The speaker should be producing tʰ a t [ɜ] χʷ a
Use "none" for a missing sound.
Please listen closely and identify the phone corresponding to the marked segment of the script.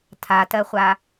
ɜ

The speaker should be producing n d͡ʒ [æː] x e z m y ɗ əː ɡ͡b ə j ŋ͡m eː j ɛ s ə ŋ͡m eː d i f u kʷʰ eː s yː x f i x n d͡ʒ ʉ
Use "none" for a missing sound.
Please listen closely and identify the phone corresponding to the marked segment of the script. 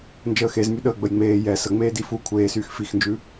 əː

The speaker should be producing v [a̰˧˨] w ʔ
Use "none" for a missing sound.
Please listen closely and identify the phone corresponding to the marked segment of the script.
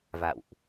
a̰˧˨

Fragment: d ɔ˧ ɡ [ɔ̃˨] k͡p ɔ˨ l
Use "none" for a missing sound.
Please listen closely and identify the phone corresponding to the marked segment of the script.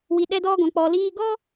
ɔ̃˨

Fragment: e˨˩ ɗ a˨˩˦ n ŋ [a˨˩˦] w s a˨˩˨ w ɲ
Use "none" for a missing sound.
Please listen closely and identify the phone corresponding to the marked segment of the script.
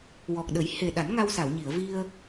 a˧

